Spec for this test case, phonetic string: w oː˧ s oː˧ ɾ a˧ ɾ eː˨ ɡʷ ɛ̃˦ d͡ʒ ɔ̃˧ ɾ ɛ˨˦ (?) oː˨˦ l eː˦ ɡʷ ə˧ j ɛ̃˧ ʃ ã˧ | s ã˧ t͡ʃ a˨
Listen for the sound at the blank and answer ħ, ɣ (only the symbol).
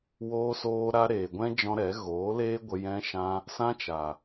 ɣ